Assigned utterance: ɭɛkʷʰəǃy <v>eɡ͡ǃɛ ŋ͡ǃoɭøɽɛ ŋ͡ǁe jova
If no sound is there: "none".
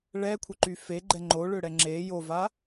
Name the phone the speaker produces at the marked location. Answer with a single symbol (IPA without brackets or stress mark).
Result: f